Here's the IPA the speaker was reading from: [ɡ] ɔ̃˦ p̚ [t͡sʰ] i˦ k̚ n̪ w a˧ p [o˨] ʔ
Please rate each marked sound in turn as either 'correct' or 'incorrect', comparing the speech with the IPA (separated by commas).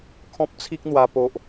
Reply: incorrect, correct, correct